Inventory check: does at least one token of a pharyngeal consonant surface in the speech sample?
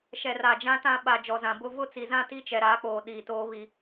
no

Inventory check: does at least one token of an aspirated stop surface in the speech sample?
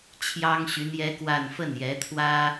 yes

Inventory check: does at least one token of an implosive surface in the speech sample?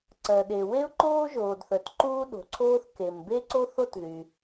yes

